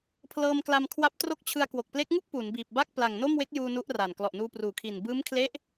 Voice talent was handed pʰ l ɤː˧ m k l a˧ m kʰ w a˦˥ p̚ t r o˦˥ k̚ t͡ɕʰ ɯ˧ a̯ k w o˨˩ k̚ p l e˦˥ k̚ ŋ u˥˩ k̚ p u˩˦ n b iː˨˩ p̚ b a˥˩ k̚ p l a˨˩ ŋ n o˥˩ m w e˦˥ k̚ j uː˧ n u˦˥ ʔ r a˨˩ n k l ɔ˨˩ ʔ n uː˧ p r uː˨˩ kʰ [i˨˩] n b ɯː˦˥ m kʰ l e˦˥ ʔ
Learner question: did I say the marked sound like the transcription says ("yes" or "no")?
yes